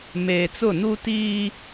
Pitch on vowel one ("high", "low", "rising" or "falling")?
low